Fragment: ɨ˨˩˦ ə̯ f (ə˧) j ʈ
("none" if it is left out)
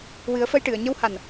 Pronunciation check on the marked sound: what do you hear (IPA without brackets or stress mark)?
ə˧